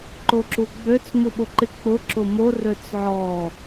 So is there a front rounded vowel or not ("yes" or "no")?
yes